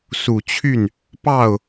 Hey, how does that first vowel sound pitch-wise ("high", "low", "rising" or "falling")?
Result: low